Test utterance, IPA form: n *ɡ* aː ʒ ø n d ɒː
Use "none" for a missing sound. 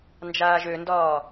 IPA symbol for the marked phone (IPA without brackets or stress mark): d͡ʒ